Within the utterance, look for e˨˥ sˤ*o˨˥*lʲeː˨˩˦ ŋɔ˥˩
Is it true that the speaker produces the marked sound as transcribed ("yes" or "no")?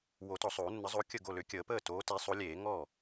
yes